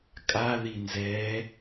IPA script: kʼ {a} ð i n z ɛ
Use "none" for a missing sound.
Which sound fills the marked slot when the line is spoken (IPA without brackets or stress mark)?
a